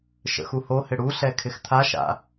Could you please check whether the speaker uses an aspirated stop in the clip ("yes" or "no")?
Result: yes